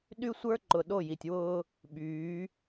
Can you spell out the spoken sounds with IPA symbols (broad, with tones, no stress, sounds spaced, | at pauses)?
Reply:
ɗ y˦ sʷ ə˞˦ ǃ ʊ˨ ɗ o˦˨ j i˨ tʲ w ʊː˦ | ɓ yː˨˦